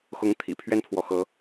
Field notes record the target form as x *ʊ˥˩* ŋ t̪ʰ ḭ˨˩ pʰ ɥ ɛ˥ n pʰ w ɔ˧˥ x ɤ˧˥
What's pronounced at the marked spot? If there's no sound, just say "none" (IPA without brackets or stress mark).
ʊ˧˥